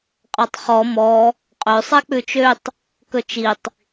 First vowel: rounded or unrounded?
unrounded